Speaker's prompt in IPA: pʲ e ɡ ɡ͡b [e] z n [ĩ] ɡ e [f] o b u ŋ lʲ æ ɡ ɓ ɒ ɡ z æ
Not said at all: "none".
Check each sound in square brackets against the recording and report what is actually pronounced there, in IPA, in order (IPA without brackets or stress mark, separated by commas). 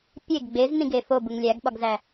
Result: e, ĩ, f